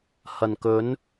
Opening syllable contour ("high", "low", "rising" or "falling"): low